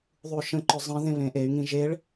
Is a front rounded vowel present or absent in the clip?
present